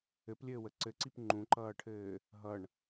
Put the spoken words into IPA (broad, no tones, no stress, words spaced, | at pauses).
ɘplʲɘːwə ǀɘǀip ŋ͡ǃũǃʌːʈʰɘː | ɦʌɳ